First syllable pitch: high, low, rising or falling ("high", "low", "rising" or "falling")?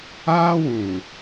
high